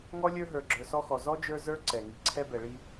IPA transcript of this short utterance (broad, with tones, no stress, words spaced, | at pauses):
ŋɔ˥lʲə˞˦ ɦə˞˨ɡ͡ǁə˞˨sɔ˥xɔ˨ zɔ˥d͡ʒə˞˦ zə˞˥ǀɛ˩ ŋi˨ǀʰɛ˥bɛ˨ɭi˦